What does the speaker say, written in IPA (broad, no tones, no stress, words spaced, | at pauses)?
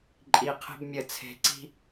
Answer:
ǃʼi qʰe̤bmʲə t͡sʰe̤ ǀi̤